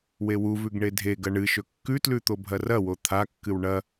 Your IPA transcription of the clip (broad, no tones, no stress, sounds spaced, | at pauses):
w e w u v ʉ ɡ ɳ e dʱ e ɡ ɐ ɳ ɨ ʃ ɵ kː ʉ t l ʉ t̪ o bʱ ɐ r ɐ w o t̪ʰ a kː ɨ w ɳ ɐ